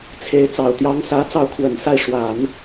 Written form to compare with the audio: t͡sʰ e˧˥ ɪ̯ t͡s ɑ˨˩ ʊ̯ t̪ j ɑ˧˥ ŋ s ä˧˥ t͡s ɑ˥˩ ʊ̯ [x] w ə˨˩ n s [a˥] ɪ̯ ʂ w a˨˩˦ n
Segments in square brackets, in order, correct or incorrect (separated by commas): incorrect, incorrect